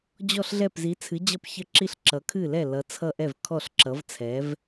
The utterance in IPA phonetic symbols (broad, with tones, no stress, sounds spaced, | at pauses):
d͡ʑ ɔ˧˩ ɬ ɮ ɛ˧˩ p z i˩˧ t͡sʰ ɨ˩˧ d͡ʑ ʌ˧˩ p ç ə˧˩ ǁ i˧˩ ɬ ǁ ʌ˩˧ kʰ ɨ˧˩ l ɛ˧˩ l ʌ˩˧ t͡sʰ ʌ˧˩ ʔ ɛ˧˩ v kʰ ɔ˧˩ ɬ ǁ ʌ˩˧ v t͡sʰ ɛ˩˧ v